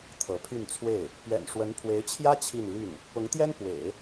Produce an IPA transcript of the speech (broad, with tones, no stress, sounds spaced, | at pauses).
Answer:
t̪ʰ ɤ˧˥ pʰ y˥˧ n t͡sʰ w e˥˩ ɪ̯ | p ɥ ɛ̰˨˩ n ʂ w ə˧˥ n pʰ w e˧˥ ɪ̯ t͡ɕʰ j ä˥ t͡ɕʰ i˥˧ n l y˥˩ n | p ʊ˧˥ ŋ t̪ j ɛ˥ n p w ḛ˨˩˦ ɪ̯